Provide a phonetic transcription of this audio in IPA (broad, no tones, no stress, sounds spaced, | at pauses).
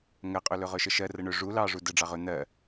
ŋ ɜ qʼ ɵ l ɵ ʁ ɵ ʃ ə ʃ ɜ r ə ɳ ɵ ʐ u l ɑ ʐ u d ə ɖ͡ʐ ɑ ʁ ɵ n̪ ɜ